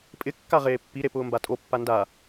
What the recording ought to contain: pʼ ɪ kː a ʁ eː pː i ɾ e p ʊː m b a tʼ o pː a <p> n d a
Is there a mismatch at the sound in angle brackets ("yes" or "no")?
yes